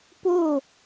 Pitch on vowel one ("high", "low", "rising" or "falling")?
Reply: falling